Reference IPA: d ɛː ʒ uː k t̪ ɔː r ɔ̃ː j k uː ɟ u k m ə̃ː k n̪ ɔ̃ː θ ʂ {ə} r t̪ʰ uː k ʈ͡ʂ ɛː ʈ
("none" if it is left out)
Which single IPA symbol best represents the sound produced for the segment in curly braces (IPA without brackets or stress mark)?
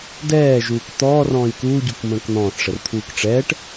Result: ə